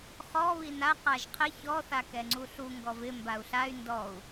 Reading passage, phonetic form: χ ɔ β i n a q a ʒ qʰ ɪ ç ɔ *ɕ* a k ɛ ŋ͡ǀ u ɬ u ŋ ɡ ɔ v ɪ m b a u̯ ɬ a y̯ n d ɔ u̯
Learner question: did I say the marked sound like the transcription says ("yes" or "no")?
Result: no